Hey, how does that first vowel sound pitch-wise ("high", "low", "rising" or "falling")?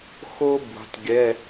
high